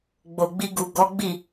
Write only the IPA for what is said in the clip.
ɡ͡b o˨ ɡ͡b i˧ ɡ u˨ ɡ ɔ˨˦ ɡ͡b i˦˨

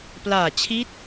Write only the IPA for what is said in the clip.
p l aː˨˩ t͡ɕʰ i˦˥ t̚

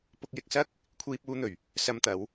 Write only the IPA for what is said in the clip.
p ʊ˧ k̚ j ɪ˧ k̚ s ɐ˥ k̚ | kʷʰ iː˧ p̚ uː˧ n̪ ɵ˨˩ ɥ | s ɐ˧ m t̪ ɐ˨˧ w

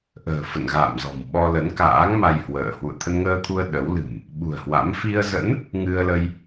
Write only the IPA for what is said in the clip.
ʔ ə̤ː˨˩ f ə̰˧˨ n ɣ a̰ː˧˨ m z ɔ̤˨˩ m ɓ ɔ˧ l ə˨˦ n k a̰ː˧˥ ŋ m a˧ j h w ə̰ː˧˨ h w ṵ˧˨ ə̯ t̪ʰ ə˧ n ŋ əː˧ t̪ʰ u˧ ə̯ ɗ ə˨˦ w l ɨ̤˨˩ m | ɓ ṳ˨˩ ə̯ h w a̰˧˥ m f i˧ ə̯ z ə̰˧˥ n | ŋ ɨ˧ ə̯ l ə˧ j

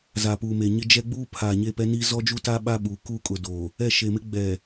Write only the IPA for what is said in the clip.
z a˨ p uː˨ m e˨ ɲ ɪ˦ d͡ʒ ɛ˦ ɡ͡b uː˦ pʰ aː˨ ɲ e˦˨ p ɛ˦ n i˦ z ɔ˦ d͡ʒ u˦ t a˦ ɓ a˦ ɓ uː˨ k u˦ kʼ ʊ˨ d oː˨ | ɛ˦˨ ʃ e˨ m ɪ˦ ɡ͡b ɛ˨

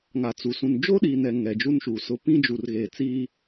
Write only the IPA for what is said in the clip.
ŋ a˨ t͡s u˨ s ũ˨ n d͡ʒ oː˦ ɗ iː˨ n ɛ˨ ŋ ɛ˨ d͡ʒ u˦ n ʃ u˨ s ʊ˦ p ĩ˦ d͡ʒ u˨ r ɣ eː˨ t͡s iː˦

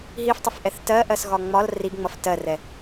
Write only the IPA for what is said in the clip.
ɦ i f tˤ ə f ʔ ɛ θ t ɜ ʔ ɜ s ɣ ɒ ŋ͡m ɒ l r i ɡ ŋ͡m ʌ f t ɜ r ɛ

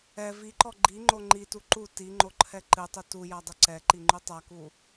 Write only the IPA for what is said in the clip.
ɛ v i ǃ ɔ ɡ͡ǃ i ŋ͡ǃ o ŋ͡ǃ i t u ǃ u t i ŋ͡ǃ o ǃʰ ɛ ǃ ɨ tˤ ɨ t u j a dˤ ɨ ǀ ɛ ǃ i ŋ͡ǃ u tˤ a k u

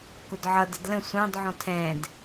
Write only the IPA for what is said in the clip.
k ʊ d ʕ ʌ d ə d l ə̃ sʷ ɑ̃ d ʕ ɔ̃ tʰ ɛ̃ d

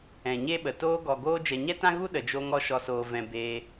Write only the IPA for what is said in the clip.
ɛ̃˨ ɲ e˦ ɓ ə˨ t oː˧ ɡ ɔ˨ ɡ oː˧ d͡ʒ ɛ˨ ɲ ɛ˦ t ã˦ ɣ u˦ ɗ ə˨ d͡ʒ o˧ ŋ ɔ˧ ʃ ɔ˨ s oː˨ v ɛ̃˨ b eː˧

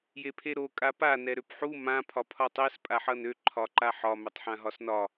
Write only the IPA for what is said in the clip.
j e pʰ e ɾ o kʼ a p a n ɛ ɾ ø p ħ u m ã pʰ ɒ pʰ ɒ tˤ e s pʼ a ħ ʌ n ø ǃʰ ɒ ǃ a ħ ɒ m ø tˤ ħ ã ɦ ɒ s n ɒ

